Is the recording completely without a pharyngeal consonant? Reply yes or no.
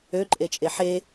no